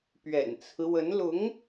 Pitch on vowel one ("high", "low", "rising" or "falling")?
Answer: low